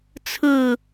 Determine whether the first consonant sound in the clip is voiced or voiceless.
voiceless